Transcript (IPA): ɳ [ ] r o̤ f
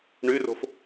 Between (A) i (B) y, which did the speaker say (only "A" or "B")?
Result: B